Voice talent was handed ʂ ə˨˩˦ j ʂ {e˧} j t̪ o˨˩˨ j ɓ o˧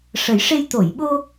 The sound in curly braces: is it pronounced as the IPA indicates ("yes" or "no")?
yes